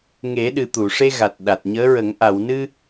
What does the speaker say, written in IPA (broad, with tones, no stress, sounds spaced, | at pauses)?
ŋ e˨˩˦ ɗ ɨ˨˩ t̪ u˨˩˨ ʂ e˧ ɣ a˨˩ t̚ ɗ a˨˩ t̚ ɲ əː˧˥ ɹ ə˨˩˦ ŋ ʔ a˨˩˨ w n ɨ˧